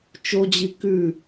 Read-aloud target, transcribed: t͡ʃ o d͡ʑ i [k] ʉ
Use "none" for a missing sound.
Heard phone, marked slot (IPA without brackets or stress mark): k